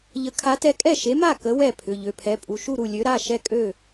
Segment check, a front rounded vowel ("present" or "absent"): present